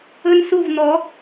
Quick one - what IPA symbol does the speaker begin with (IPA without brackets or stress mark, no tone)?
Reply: ɵ